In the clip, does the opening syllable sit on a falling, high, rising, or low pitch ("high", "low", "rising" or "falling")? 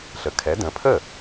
low